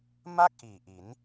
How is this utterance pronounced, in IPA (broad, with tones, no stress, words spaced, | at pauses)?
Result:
ma˥˩k̚ ʔiː˨˩ʔi˩˦n